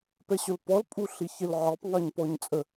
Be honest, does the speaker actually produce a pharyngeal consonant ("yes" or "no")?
yes